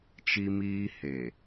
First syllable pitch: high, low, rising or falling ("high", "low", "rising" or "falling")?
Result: high